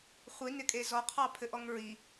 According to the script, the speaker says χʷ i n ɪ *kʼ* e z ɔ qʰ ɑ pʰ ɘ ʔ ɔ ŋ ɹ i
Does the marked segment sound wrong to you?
no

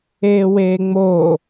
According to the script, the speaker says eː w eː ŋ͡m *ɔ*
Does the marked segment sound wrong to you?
yes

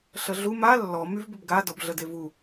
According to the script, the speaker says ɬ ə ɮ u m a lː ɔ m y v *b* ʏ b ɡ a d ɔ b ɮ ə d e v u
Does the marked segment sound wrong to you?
no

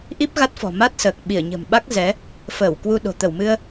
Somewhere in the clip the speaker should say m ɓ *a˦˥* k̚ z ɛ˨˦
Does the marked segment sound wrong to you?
no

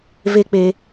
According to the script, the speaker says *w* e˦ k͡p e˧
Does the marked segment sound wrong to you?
yes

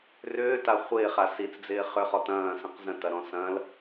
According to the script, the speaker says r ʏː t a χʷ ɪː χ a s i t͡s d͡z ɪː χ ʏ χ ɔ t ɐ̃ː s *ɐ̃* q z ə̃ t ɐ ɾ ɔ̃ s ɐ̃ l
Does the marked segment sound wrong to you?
yes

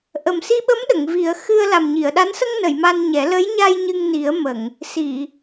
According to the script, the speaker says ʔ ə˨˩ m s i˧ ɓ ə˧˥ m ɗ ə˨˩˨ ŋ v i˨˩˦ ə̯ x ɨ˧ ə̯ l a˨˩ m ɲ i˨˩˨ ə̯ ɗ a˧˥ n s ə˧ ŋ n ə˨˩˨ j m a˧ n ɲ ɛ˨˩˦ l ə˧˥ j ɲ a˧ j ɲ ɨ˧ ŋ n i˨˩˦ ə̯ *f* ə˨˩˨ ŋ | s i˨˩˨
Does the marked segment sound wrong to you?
yes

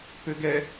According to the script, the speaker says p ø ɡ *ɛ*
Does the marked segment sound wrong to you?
no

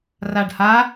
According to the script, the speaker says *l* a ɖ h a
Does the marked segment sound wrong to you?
yes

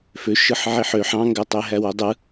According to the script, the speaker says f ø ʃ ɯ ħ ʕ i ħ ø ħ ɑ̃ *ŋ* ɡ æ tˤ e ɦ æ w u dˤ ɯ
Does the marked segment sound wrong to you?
no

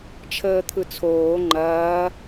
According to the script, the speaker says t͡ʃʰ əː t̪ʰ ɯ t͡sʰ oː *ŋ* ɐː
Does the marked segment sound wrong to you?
yes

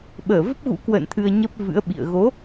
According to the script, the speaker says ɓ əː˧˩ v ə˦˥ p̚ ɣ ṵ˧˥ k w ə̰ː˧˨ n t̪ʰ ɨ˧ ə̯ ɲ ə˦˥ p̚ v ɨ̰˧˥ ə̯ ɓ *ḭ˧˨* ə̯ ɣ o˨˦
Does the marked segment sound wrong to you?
no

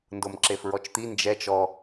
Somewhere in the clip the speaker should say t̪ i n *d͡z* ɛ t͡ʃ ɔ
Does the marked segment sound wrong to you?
yes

